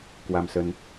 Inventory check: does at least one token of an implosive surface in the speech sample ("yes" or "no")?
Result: no